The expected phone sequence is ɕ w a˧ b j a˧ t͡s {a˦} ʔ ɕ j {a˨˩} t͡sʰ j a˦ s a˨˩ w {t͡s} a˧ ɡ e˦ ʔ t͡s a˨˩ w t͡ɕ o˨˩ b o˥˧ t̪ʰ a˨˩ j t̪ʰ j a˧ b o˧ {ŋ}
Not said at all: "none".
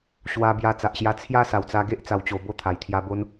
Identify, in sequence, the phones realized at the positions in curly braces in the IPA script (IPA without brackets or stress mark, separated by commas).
a˨, a˧, t͡s, n